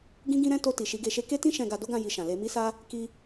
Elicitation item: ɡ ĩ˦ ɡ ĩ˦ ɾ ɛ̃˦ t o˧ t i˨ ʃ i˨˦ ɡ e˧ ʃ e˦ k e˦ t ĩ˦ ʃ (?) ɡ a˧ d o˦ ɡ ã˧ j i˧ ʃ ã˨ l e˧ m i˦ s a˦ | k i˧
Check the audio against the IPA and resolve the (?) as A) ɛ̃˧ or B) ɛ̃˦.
A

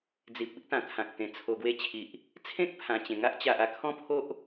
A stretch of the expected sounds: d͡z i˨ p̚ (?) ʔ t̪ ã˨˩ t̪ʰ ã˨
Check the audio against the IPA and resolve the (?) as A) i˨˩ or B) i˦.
B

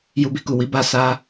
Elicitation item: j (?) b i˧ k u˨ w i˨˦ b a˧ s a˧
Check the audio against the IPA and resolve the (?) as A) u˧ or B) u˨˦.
A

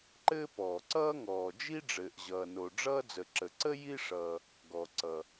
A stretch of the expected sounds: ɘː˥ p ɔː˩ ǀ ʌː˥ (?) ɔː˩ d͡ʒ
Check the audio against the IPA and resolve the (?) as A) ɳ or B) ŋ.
B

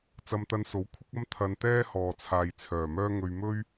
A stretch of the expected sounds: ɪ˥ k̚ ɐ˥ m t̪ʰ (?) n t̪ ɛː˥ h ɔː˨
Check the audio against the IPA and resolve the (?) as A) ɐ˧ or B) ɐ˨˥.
A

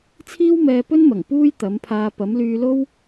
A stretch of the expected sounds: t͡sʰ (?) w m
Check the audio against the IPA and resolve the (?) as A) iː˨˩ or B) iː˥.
B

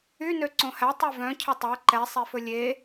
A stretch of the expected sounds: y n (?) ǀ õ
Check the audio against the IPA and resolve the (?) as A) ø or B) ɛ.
A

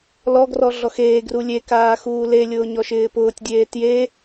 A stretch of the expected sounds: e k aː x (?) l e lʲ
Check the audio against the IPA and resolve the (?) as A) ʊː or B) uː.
B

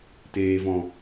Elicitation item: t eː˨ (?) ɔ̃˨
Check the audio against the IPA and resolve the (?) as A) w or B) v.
B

